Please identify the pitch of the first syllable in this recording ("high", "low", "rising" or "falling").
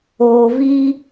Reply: low